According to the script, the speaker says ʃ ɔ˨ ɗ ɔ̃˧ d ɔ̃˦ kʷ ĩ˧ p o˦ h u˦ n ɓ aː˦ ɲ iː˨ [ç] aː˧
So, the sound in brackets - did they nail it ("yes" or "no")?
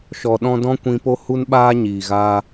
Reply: no